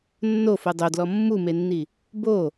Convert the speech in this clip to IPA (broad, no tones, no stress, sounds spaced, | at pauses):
nː o f o dˤ o d l ɔ mː u m e nː i | b o